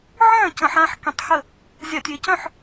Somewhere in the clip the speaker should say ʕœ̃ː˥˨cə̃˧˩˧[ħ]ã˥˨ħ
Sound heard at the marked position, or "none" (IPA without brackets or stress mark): ħ